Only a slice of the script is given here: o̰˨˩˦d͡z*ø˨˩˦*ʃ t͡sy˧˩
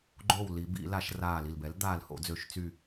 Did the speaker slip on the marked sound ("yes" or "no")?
no